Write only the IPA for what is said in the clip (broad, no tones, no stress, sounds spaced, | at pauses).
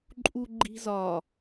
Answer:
ǃʼ u ɡ͡ǃ i̤ z ɒ